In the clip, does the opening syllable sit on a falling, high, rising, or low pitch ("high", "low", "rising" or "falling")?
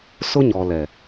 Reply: high